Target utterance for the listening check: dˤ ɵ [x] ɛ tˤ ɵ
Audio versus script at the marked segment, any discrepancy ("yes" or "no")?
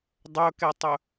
yes